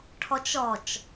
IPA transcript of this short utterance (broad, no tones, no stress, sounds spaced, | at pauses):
ʈʰ ɔ t͡ʃ ɔ t͡ʃ